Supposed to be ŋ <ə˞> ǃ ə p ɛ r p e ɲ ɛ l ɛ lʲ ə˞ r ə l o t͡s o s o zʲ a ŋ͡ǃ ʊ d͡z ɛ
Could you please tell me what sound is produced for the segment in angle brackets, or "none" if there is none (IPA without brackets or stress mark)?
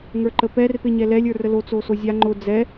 ə˞